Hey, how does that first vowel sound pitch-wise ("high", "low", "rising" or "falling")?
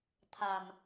low